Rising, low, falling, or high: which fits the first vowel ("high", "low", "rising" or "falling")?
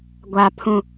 low